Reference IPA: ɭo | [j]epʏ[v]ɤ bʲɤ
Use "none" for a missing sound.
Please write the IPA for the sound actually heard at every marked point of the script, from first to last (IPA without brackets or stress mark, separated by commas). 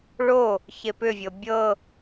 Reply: ç, vʲ